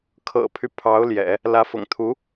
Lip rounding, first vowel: unrounded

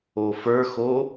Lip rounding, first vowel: rounded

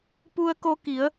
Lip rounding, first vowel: rounded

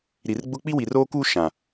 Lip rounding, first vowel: unrounded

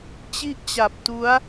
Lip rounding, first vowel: unrounded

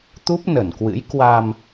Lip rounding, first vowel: rounded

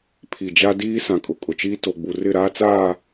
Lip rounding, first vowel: unrounded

